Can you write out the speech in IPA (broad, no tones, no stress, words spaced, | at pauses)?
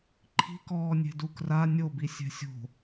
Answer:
ǃʰi̤kɔːnʲe̤ dukra nʲobi sʲɛ̤sʲo̤